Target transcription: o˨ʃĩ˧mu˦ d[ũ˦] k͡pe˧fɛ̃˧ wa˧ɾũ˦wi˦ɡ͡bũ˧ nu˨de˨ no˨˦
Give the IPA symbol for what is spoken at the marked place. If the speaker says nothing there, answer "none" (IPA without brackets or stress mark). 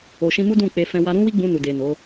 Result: ũ˦˨